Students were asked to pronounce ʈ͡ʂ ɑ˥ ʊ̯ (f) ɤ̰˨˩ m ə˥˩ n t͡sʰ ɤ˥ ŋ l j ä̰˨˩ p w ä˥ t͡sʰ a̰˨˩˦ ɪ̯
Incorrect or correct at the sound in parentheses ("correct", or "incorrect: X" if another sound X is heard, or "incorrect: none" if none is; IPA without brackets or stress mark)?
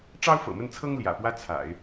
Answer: correct